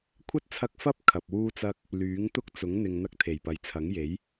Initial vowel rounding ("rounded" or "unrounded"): unrounded